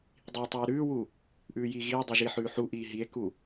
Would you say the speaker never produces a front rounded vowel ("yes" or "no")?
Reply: yes